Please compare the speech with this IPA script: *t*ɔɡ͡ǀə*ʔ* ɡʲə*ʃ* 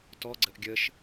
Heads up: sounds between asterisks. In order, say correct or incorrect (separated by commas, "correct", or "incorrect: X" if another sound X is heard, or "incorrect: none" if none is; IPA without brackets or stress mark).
correct, correct, correct